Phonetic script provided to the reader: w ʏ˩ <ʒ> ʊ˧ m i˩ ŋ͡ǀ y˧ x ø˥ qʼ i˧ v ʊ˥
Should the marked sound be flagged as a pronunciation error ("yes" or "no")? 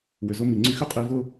yes